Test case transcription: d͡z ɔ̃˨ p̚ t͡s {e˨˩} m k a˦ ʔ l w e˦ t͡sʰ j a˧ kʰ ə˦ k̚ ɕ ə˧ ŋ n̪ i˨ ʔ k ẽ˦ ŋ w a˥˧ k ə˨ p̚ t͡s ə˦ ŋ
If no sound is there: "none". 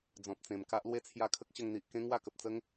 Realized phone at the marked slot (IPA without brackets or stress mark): ẽ˨˩